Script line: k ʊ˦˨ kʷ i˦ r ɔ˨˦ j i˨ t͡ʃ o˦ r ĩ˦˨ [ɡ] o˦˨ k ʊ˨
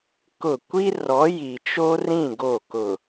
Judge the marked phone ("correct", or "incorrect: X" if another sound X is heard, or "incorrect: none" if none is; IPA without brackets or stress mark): correct